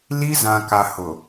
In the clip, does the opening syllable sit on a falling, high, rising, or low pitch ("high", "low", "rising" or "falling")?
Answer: high